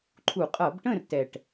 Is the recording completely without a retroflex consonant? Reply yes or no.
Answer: no